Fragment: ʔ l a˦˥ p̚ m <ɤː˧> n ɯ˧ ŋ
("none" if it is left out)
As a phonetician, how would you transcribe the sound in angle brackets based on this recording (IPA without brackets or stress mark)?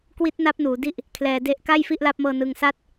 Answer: ɤː˧